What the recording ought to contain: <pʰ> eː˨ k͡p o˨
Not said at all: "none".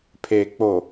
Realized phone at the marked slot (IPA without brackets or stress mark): pʰ